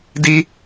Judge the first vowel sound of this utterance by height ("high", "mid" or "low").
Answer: high